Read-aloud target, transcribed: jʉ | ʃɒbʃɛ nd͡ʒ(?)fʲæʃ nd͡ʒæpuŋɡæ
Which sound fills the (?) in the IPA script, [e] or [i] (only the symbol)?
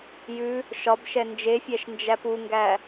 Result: e